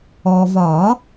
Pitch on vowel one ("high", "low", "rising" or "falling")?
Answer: low